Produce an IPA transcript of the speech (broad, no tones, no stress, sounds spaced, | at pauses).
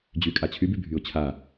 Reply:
d͡ʑ y kʼ a t͡ɕʰ y b y bʱ y ʊ̯ t͡ɕʰ a